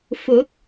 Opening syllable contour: rising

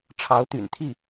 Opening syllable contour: rising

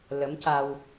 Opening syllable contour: rising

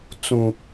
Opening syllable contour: low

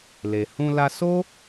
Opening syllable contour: low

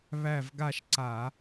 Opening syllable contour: falling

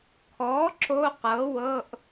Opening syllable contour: rising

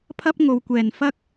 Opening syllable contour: high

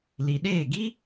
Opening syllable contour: low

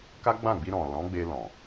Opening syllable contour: high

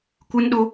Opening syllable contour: high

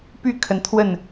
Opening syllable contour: falling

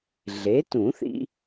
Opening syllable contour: rising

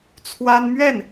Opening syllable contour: high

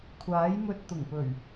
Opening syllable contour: rising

